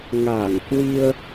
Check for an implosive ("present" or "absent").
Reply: absent